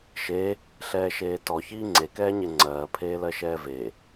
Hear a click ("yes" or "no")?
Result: yes